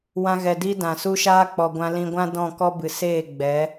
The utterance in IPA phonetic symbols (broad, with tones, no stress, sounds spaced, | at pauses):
w ã˧ ɣ ɛ˨ d i˦ d ã˨ s u˦ ʃ aː˦ k͡p ɔ˨ ɡʷ ã˧ l ĩ˧ ɡʷ ã˦ d ɔ̃˦˨ k ɔ˦ b ɨ˨ s eː˦˨ ɡ͡b ɛ˨˦